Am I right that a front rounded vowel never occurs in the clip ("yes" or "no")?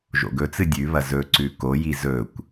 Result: yes